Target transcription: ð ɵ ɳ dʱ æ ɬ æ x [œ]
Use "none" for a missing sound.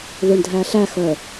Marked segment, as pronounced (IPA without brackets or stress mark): œ